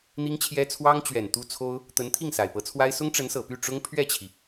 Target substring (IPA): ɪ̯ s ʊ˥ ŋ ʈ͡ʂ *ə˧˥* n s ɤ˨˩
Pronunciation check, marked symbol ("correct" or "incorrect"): correct